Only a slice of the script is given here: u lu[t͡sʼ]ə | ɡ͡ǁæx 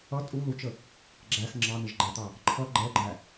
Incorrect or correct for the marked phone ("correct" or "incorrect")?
incorrect